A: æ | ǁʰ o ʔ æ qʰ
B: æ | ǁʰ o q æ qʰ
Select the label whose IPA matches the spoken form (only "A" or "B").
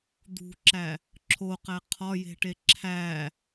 B